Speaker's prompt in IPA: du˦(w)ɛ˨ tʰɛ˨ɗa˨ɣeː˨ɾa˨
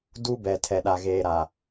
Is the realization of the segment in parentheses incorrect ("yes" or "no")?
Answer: yes